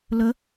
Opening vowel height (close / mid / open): mid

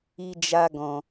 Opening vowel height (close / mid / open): close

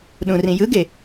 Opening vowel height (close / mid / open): close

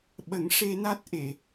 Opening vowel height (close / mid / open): mid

